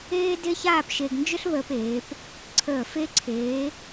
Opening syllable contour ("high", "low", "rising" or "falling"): high